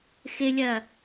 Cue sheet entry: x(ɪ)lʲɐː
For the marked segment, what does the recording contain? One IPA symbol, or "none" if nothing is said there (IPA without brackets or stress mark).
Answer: ɪ